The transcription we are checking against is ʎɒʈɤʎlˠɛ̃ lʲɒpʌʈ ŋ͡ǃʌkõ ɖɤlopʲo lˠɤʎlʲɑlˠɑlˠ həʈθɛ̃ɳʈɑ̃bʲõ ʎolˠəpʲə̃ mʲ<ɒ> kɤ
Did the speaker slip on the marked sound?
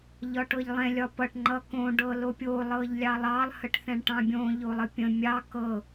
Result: yes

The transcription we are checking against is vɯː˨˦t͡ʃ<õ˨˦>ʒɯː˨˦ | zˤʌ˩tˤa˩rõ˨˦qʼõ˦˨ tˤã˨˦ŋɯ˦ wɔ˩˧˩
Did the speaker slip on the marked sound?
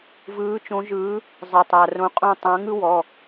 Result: no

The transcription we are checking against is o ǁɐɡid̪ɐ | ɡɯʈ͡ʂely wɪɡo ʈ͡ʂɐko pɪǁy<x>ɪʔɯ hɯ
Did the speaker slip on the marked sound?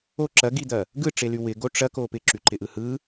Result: yes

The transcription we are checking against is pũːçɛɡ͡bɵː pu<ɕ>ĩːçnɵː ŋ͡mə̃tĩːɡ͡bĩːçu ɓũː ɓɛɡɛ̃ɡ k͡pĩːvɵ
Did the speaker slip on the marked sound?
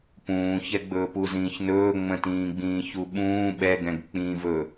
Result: yes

